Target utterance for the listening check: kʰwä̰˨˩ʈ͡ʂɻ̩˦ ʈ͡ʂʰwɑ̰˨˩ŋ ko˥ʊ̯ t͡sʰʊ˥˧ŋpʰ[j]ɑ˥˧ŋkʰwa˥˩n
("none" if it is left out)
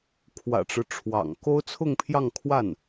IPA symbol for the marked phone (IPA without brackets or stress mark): j